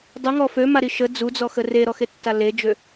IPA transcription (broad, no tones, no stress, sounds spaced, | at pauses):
dˤ u ŋ ɔ f ø m a ɾ i ʃ ə d͡z u d͡z ɔ x ə r e ɾ ɔ x e tː a l e d͡ʒ ø